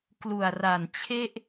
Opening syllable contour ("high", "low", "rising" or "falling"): low